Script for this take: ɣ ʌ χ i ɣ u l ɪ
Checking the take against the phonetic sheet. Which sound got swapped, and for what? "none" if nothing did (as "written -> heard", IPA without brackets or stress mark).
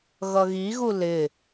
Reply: χ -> ɣ